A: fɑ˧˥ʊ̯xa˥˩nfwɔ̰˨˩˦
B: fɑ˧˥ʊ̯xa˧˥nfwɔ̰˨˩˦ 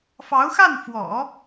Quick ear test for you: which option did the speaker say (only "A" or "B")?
A